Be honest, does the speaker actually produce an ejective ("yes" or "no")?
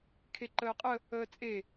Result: yes